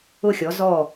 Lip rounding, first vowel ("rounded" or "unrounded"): rounded